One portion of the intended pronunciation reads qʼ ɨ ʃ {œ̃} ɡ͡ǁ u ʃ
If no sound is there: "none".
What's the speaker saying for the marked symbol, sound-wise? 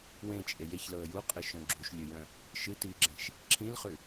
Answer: œ̃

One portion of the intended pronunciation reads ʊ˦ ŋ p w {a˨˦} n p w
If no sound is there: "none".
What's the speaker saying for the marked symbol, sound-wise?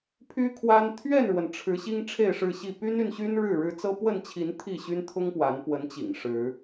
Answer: a˨˦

